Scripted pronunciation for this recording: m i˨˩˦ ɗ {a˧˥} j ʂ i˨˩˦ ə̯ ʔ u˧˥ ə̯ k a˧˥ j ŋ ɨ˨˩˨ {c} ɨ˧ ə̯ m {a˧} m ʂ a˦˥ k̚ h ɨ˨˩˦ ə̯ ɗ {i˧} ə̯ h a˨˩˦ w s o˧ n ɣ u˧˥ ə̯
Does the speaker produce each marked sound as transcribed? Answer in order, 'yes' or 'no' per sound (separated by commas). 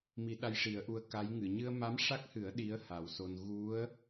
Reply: no, no, no, no